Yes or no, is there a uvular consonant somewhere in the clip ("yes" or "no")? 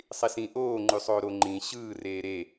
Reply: no